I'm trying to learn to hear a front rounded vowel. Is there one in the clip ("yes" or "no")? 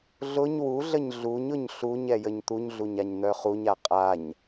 yes